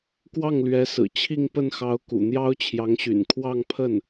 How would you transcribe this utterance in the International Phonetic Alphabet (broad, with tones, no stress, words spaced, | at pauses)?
kwɑ˥˩ŋlɥɛ˧˥sɹ̩˨˩ t͡ɕʰi˥˧ŋpə˥˩nxɑ˧˥ʊ̯ kṵ˨˩n̪jɑ˥ʊ̯t͡ɕʰjɑ˧˥ŋɕy̰˨˩n kʰwɑ˥˧ŋpʰə˥˩n